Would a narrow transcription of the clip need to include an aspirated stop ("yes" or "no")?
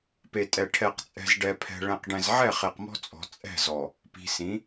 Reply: yes